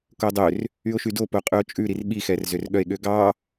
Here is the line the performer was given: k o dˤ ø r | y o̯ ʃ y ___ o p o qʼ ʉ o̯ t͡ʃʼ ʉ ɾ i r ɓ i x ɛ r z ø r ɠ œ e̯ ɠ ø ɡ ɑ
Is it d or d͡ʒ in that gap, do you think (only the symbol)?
d